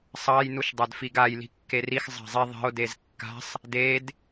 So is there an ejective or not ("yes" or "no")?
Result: no